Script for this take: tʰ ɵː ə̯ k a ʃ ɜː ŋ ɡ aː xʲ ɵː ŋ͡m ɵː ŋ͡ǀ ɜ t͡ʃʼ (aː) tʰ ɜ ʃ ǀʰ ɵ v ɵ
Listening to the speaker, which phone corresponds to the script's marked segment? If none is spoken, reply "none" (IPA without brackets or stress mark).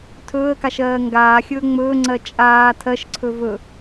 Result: aː